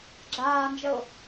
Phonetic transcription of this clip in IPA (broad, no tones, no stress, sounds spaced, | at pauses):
ɡ͡ǁ aː n d͡ʒ ə ʊ̯